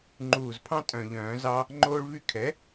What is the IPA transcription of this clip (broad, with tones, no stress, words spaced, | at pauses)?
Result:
ŋ͡ǃuː˨˩zpʰɑ̃˦ tʼœ̃˨˩ʎœ̃ː˨˩˦zɑ˦ | ŋ͡ǃoː˦ɭvy˦ kʰɛ˩˥